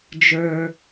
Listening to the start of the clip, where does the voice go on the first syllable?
low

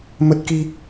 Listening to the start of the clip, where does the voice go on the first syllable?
high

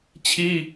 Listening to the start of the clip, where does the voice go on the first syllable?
high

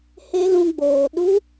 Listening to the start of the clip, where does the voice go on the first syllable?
high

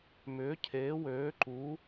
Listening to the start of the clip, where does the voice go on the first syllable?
rising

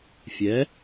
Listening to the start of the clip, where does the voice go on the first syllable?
rising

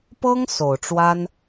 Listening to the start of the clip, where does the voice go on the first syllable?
high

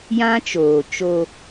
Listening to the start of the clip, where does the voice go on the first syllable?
high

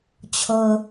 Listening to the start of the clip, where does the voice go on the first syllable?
low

